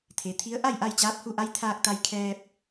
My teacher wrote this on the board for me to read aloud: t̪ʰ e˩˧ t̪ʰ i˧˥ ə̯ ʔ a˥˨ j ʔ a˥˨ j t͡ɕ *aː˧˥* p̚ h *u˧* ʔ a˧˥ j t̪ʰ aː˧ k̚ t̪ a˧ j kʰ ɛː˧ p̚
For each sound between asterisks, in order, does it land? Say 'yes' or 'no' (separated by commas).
yes, yes